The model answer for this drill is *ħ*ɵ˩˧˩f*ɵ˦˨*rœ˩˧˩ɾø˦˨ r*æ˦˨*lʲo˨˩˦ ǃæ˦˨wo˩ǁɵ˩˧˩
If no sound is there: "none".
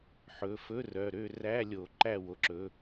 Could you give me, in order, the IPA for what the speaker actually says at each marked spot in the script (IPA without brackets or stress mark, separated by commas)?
ħ, ɵ˧˥˧, æ˧˥˧